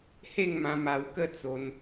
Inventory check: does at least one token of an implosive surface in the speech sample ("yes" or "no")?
no